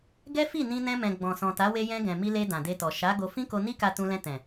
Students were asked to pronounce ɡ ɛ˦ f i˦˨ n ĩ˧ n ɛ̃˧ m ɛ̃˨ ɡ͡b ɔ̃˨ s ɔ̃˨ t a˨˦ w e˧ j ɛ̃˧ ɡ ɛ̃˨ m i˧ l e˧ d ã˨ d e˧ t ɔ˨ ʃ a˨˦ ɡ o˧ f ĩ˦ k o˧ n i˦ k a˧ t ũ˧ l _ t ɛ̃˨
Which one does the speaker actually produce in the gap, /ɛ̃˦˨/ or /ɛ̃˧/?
ɛ̃˧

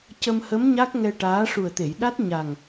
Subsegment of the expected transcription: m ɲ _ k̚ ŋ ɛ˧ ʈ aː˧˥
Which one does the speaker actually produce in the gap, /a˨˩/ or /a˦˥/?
a˦˥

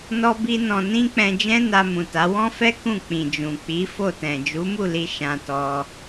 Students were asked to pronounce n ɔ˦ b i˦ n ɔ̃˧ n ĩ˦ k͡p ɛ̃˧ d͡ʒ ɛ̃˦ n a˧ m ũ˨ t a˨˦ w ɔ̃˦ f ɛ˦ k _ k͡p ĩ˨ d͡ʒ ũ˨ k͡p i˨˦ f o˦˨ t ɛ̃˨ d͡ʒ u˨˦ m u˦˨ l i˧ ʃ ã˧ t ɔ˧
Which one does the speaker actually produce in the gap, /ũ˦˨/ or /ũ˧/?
ũ˦˨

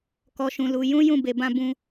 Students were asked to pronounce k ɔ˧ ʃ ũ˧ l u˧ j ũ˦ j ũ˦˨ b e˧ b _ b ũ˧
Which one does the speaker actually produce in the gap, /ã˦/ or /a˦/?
ã˦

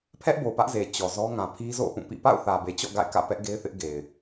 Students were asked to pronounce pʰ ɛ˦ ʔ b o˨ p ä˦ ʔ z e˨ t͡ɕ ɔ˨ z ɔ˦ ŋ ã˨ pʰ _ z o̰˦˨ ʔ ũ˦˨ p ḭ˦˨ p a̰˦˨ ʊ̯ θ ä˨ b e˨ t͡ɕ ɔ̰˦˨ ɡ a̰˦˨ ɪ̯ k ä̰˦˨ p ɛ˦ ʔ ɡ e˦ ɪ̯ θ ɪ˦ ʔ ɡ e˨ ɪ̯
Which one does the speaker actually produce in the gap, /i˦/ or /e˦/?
i˦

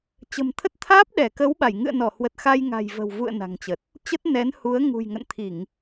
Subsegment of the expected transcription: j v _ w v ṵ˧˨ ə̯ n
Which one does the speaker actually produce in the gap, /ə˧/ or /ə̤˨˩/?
ə̤˨˩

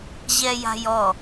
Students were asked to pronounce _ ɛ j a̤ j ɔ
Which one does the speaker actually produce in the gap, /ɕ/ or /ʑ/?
ʑ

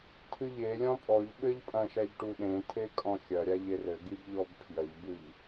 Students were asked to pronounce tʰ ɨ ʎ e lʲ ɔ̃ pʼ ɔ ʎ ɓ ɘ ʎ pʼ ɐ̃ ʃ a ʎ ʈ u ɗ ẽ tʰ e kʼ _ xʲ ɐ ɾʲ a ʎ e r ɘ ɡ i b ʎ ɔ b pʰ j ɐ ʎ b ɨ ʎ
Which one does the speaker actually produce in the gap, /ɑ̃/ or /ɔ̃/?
ɔ̃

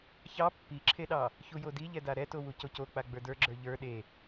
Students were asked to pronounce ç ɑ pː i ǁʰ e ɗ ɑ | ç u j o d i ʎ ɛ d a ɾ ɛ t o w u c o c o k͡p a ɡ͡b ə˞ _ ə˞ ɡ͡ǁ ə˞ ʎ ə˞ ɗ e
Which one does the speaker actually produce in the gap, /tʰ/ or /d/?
d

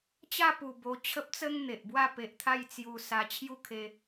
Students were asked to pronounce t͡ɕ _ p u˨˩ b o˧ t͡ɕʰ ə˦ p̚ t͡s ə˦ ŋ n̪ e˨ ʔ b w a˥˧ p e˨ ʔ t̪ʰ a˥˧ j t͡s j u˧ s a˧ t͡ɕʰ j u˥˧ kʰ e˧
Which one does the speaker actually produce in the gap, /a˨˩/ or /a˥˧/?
a˥˧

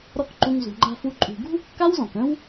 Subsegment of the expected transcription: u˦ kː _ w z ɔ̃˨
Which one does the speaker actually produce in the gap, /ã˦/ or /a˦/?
a˦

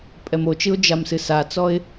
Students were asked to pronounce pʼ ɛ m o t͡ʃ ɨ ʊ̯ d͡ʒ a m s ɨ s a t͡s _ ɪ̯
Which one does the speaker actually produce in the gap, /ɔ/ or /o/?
ɔ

